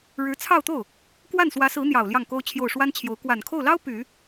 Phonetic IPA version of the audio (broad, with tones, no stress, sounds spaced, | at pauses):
ɻ ɻ̩˧˥ t͡sʰ ɑ˥˧ ʊ̯ t̪ o˥˩ ʊ̯ | k w a˥˩ n s w ä˧˥ s ɹ̩˧˥ n̪ j ɑ˨˩ ʊ̯ l j ɑ˥˩ ŋ k o˥ ʊ̯ t͡ɕʰ j o˥˩ ʊ̯ ʂ w a˥ n t͡ɕʰ j o˧˥ ʊ̯ k w a˨˩ n kʰ o˥˩ ʊ̯ l ɑ˥ ʊ̯ p y˨˩˦